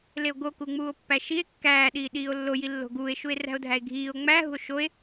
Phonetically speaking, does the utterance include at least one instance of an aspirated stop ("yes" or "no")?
no